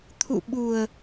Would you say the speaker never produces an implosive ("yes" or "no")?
no